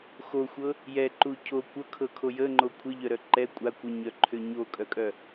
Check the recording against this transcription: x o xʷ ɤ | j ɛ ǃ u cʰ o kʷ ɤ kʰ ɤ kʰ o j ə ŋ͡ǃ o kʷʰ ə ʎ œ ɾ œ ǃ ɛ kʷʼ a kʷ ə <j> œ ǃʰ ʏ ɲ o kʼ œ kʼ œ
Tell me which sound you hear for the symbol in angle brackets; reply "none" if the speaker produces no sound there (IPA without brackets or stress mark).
ɲ